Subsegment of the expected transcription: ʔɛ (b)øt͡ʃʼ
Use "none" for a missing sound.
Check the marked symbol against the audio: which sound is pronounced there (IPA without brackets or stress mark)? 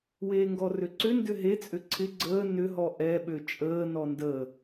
ɓ